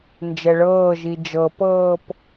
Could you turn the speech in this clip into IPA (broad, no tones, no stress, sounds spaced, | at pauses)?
n d͡ʒ ɛ ɭ ɤː ʒ i d͡ʒ ɤ p ɤː p